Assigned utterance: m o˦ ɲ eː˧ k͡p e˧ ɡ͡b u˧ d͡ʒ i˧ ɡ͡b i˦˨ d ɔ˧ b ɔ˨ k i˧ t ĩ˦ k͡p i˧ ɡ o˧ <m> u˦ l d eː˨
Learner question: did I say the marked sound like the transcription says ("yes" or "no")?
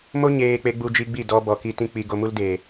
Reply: yes